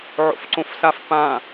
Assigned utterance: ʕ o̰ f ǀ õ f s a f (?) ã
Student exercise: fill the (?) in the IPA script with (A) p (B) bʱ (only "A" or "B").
A